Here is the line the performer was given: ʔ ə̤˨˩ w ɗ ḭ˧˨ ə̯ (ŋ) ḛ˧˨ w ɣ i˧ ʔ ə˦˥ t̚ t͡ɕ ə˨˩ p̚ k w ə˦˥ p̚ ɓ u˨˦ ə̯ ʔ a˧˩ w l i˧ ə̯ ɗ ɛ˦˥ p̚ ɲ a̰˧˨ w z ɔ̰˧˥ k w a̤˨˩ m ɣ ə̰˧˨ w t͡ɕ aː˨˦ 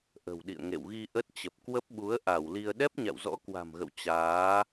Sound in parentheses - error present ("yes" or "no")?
no